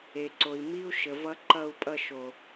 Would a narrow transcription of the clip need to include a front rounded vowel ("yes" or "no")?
no